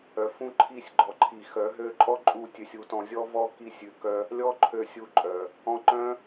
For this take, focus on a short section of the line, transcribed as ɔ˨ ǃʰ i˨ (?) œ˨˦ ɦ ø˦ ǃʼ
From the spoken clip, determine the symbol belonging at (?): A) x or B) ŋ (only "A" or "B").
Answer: A